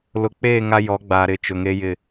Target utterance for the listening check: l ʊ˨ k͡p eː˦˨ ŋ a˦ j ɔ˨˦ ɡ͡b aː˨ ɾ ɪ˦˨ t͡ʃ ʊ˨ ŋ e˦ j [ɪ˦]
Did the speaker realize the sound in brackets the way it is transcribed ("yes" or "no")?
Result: no